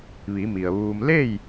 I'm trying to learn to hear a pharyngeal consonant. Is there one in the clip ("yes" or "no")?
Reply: no